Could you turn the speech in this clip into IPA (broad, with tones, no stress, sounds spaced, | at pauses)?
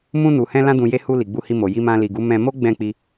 m ũ˧ n u˨ h ɛ̃˧ l ã˦ d ũ˧ j e˧ h u˧ l i˨ ɡ͡b u˧ h i˧ m o˨ j i˧ m ã˧ l i˨ ɡ u˨˦ m ɛ̃˧ m o˦ ɡ͡b ɛ̃˦˨ k͡p i˧